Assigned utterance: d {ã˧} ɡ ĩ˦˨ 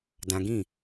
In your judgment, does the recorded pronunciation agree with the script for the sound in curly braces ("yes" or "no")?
yes